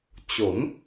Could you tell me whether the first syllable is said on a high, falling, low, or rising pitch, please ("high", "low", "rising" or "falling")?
rising